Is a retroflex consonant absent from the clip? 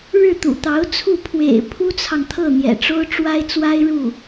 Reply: no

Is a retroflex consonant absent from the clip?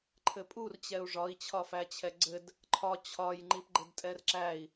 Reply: no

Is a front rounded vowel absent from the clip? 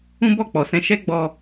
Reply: yes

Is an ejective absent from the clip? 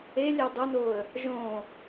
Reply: yes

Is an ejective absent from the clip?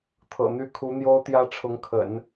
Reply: yes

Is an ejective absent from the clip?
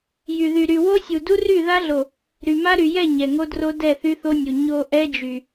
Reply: yes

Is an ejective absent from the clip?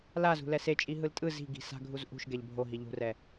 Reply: no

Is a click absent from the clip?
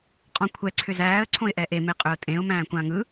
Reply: no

